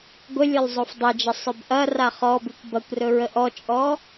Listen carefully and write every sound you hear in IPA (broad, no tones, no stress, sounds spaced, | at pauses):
ɡʷ ə lʲ ɵ lˠ zˤ o f dˤ e d͡ʒ ə sˤ ɵ b ʔ ɐ r a χ ɔ b ʉ kʷ b ɐ kʷ r ɵ ɹ ə ʔ ɔ t͡ʃʼ ɔ